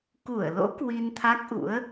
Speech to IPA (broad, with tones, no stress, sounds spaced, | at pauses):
k u˧˩ ə̯ l o̰˧˥ k w i˧ n t̪ʰ a˦˥ k̚ ʔ ṵ˧˥ ə̯